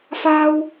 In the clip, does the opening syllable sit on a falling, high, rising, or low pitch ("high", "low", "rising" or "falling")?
high